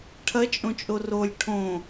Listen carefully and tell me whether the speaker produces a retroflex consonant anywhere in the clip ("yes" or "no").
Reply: yes